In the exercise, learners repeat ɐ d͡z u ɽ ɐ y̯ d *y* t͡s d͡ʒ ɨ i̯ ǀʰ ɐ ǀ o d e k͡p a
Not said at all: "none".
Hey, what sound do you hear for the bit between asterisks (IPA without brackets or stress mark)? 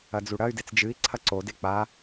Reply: e